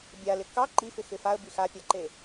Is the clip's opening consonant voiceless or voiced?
voiced